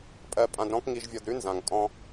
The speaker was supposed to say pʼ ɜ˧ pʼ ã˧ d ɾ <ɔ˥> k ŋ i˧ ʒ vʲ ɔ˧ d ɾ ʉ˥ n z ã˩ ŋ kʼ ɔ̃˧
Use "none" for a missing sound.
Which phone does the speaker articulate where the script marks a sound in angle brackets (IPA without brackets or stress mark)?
ɔ̃˥